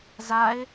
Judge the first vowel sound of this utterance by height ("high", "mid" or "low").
low